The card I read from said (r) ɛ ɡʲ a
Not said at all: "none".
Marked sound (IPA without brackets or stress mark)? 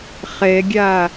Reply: χ